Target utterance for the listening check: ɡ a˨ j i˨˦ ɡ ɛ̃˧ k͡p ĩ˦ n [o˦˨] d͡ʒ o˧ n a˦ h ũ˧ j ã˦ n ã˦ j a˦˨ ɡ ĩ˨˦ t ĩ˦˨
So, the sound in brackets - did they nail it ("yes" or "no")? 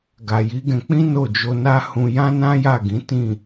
yes